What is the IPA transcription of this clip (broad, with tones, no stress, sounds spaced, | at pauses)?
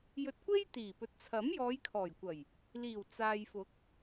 j ɵ˧ t̚ kʷ e˥ j t̪ iː˨˩ p ɵ˨ t̚ t͡sʰ ɐ˨˥ m j ɔː˨˧ j kʰ ɔː˨˩ j kʷ ɐ˨˩ j | l iː˨˩ w t͡s aː˨ j f ʊ˨˥ k̚